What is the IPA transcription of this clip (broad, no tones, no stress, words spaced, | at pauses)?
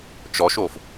t͡ʃɔʃof